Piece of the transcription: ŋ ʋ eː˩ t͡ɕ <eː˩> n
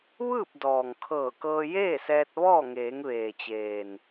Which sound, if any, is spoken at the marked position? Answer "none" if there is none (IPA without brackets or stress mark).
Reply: eː˩